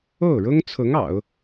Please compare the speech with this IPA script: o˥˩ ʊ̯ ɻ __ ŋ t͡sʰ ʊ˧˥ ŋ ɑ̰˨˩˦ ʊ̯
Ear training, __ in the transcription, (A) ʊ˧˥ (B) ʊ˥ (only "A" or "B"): B